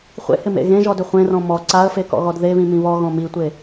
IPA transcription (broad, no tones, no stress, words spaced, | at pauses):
χʷḛhɪmḛ ɣẽʒɔdʏ χʷẽrɔ̃ mɔ ǀaə̯fekɔ̰ɣɔd ðeβĩmĩ βɔɣɔ̃ mitʷe